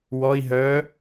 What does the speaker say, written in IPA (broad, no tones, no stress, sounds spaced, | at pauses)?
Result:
w ɔ i̯ ɦ œ